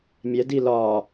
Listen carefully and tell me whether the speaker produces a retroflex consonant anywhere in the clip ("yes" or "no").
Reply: no